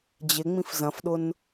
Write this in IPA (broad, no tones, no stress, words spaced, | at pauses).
d͡ʑɪ ŋ͡mĩfzɐ̃fɗʊn